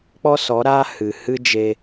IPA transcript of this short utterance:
k͡p ɔ˦ s ɔ˨˦ ɾ aː˦ h ɨ˨ h ɨ˦ d͡ʒ e˧

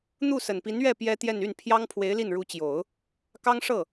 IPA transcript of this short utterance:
n̪ u˥˩ s ə˨˩ n p i˧˥ n ɥ ɛ˥˩ p j ɛ˥ t̪ j ɛ˥˧ n y˥˩ n pʰ j ɑ˥ ŋ pʰ w e˧˥ ɪ̯ l i˥˩ n ɻ u˧˥ t͡ɕ j o˨˩˦ ʊ̯ | k ɑ˥ ŋ ʂ ɤ˥˩

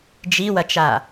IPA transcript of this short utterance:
d͡ʒ i w ɐ t͡ʃ a

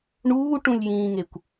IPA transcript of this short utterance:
ɳ uː ʈ ũ lʲ j ĩː ŋ e kʷ

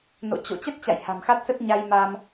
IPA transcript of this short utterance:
n o̰˧˨ t͡ɕ o̰˧˨ t͡ɕ ə˦˥ t̚ t͡ɕ a̰˧˨ j h a̤˨˩ m x a˦˥ t̚ s ə˦˥ t̚ ɲ a˧ j m a˧ m

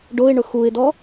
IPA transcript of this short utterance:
ɖ o ɪ̯ ɳ ʊ x u ɪ̯ d ɔ

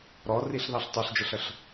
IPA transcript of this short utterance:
ɾ ɔ r i ɬ ð ɑ ɬ tˤ ə˞ ɬ d͡ʒ ə ɬ ə ɬ

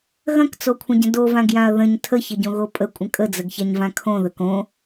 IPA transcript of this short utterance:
ɣ ɐ̃ k t͡s o kʷʰ ə̃ ɟ ə̃ d o v ã ɡ j ã ɐ̯ ð ə̃ ɲ tʰ ə ç ə ɟ õ ɣ o pʼ ə kʷʼ ə̃ kʼ ə d͡z ə ɡ ç a ɲ v ã kʰ õ ð ə k õ

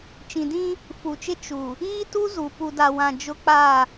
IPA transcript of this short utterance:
t͡ʃ ĩ˨ d ĩ˦ | f u˨ t͡ʃ ɪ˦ t͡ʃ u˨ | iː˦ t u˦ z u˨ p u˨ d a˨ w ã˨ d͡ʒ ʊ˦ k͡p a˦˨

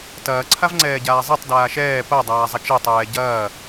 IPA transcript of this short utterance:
t ɐː ǀʰ a v ŋ͡ǀ ɛː ɟ aː zˤ ɛ tˤ d aː ʃ ɛː p ɐ dˤ aː zˤ ɐ t͡ʃ e tˤ ɛː ɟ ɐː

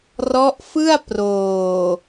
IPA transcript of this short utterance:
r ɔ˦˥ ʔ f ɯ˥˩ a̯ p r oː˨˩

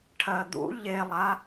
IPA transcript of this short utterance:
ʈʰ ɜ d̪ ṵ ʎ e lˠ a

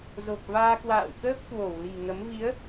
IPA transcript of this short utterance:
z o˨˩ k̚ v aː˧ k w a̰ː˧˨ w k əː˦˥ p̚ k w o˧˩ w l i̤˨˩ ŋ ə˨˦ m v i˨˦ ə̯

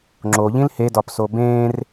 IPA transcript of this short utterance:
ŋ͡ǁ o ʎ ĩ l h e d ɒ p s o b ẽː r

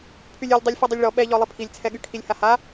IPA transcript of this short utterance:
pʰ y lʲ y lʲ dˤ e lʲ f ɛ dˤ i lʲ ɭ ɔ ɓ ɛ ʎ ɔ lˠ i pʰ i lʲ t͡sʰ ɛ ɠ y kʰ i lʲ h a h a

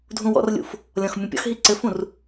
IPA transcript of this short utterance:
dʱ ũ w ɔ̰ r lʲ ṵ f | lʲ ɔ̃ x mʲ ũ pʲ ɔ̰ x ɦ i ǀ ɘ f ũ r

